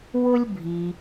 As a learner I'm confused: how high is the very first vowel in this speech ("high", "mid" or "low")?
high